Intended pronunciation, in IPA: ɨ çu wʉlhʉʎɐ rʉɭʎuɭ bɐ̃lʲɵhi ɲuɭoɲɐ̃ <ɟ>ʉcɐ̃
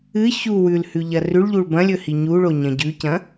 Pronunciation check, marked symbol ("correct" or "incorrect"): correct